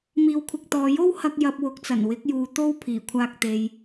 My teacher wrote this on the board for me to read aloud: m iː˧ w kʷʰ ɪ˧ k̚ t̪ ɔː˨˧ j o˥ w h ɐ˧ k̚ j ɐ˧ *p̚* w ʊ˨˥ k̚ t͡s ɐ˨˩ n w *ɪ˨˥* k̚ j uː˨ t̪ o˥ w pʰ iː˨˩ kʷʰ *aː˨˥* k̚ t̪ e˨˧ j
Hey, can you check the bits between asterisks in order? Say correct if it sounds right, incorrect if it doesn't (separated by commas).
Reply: correct, correct, incorrect